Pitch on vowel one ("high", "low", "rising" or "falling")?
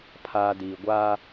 high